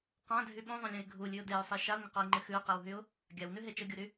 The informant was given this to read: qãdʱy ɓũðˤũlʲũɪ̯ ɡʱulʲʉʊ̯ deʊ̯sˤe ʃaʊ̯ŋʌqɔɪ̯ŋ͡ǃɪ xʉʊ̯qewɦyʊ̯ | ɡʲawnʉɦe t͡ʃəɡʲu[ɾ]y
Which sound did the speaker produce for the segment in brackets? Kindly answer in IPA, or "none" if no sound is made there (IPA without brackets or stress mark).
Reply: ɾ